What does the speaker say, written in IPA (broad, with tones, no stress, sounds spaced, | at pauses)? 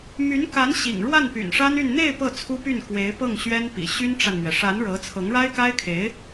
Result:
m y˧˥ n k a˧˥ n ɕ ḭ˨˩ ŋ ɻ w a˥˩ n p y̰˨˩ n ʂ a˥ n y˥˧ n n̪ e˥˧ ɪ̯ p ɤ˥˩ t͡sʰ u˥ p y˥˩ n k w e˧˥ ɪ̯ p ɤ˥˩ ŋ ɕ ɥ ɛ˥ n p ḭ˨˩ ɕ y˥ n ʈ͡ʂ a˨ n m ɥ ɛ˩ ʂ a˧˥ n ɻ ɤ˧˥ t͡sʰ ɤ˧˥ ŋ ɻ a˥ ɪ̯ k a˥ ɪ̯ kʰ e˧˥ ɪ̯